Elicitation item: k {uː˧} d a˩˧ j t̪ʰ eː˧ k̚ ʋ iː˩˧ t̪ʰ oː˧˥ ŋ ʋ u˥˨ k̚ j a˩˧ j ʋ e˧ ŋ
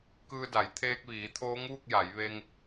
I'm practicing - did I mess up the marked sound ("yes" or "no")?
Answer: yes